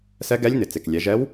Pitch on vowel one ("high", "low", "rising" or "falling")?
rising